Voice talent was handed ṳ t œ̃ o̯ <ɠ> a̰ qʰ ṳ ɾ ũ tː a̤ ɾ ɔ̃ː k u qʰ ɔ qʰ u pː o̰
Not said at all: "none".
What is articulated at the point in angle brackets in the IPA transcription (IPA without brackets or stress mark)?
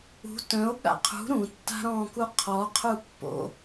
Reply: ɠ